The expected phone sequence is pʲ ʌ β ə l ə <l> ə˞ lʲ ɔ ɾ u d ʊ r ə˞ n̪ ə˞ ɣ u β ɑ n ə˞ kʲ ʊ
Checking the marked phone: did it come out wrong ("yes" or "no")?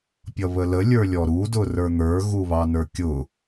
yes